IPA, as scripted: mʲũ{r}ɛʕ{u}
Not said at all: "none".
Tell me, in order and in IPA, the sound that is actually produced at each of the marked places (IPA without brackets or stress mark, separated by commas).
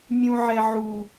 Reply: ʕ, u